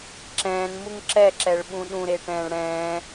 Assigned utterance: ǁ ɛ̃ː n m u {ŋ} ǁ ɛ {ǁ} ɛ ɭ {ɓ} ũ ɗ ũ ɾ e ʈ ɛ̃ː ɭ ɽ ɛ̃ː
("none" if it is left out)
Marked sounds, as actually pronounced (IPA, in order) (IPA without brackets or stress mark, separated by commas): ŋ, ǁ, ɓ